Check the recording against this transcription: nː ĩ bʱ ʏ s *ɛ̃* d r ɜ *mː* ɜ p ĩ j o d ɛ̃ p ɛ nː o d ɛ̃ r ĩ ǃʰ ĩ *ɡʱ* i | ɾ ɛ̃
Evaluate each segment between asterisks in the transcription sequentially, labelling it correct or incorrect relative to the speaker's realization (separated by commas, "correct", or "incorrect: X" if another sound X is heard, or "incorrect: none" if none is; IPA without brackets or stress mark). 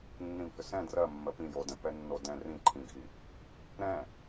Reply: correct, correct, correct